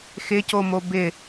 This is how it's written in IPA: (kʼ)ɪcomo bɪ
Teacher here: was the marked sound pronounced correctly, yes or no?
no